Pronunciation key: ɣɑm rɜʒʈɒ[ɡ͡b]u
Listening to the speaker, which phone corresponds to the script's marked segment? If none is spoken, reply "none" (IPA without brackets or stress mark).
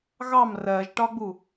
ɡ͡b